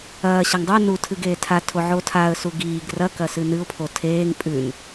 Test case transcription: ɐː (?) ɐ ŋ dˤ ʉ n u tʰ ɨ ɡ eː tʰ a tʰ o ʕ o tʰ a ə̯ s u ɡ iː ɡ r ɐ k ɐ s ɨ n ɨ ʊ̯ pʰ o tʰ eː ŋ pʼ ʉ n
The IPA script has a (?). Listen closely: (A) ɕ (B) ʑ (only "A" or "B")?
A